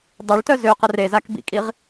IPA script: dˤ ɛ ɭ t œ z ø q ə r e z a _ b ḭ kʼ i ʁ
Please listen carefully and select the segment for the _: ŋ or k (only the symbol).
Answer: k